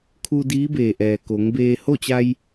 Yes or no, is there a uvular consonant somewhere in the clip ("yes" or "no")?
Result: no